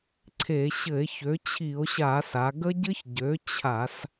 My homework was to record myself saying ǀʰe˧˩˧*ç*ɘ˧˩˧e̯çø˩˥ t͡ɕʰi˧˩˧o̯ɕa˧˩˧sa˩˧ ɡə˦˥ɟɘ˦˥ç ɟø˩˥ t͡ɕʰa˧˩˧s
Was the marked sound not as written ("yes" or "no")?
yes